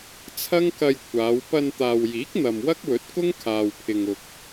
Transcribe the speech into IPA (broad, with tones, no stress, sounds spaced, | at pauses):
t͡sʰ ɐ˥ ŋ k ɐ˧ j kʷʰ aː˨˧ w p ɐ˧ n t̪ aː˨ w j iː˨˥ k̚ n̪ ɐ˨ m w ɐ˥ k̚ w ɵ˨˥ t̚ k ʊ˥ ŋ kʰ aː˨ w pʰ ɪ˨ ŋ ʊ˨ k̚